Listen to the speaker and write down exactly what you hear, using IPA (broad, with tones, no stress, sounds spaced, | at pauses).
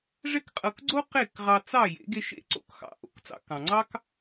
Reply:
ʐ ɛ˥ k qʼ ɤ˧ k ɡ͡ǀ o˥ q e˥˩ k ʁ ɑ˧ t͡s ɑ˥˩ j ḛ˩˥ ɡ e˧ ʃ ḛ˥˩ ǀ o̰˥˩ k x ɑ̰˧ ʔ o̰˧ k t͡s ɑ̰˧ k ɑ̃˩ ŋ͡ǀ ɑ˥ k